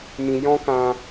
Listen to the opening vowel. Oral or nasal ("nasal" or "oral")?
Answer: nasal